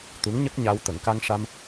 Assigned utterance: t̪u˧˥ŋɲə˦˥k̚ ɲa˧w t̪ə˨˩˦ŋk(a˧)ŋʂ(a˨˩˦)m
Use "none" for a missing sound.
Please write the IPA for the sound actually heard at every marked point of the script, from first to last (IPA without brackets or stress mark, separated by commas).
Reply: a˧, a˧